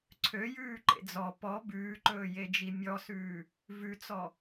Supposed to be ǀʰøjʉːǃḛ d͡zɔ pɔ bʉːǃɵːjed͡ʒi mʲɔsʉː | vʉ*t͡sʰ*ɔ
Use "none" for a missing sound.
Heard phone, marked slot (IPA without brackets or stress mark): t͡s